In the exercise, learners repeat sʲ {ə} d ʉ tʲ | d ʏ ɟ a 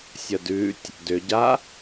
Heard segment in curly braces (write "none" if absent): ə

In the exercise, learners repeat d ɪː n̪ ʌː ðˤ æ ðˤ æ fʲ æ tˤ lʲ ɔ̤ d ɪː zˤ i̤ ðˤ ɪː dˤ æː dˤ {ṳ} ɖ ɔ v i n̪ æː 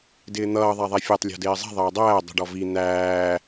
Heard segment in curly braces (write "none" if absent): ṳ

